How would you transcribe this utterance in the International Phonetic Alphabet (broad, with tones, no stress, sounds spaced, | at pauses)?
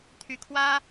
t̪ʰ y˥ kʰ w ä˥